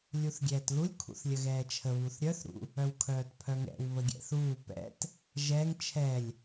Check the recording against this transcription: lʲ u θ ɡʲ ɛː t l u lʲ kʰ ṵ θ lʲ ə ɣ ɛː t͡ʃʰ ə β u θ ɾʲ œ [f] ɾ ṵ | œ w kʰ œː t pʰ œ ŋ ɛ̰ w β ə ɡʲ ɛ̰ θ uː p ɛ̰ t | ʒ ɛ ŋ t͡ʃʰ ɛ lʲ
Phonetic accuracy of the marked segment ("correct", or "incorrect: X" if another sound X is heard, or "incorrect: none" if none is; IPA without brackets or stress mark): incorrect: θ